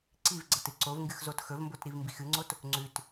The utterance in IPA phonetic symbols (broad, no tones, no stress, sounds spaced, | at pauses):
ǀ i v ɡ͡ǀ ɐ t ɨ ǀ o v ŋ ɡ ɨ x z o t x ɵ v m b o t ɾ i v m b i x ɨ ŋ͡ǀ o t | ŋ͡ǀ ʉ t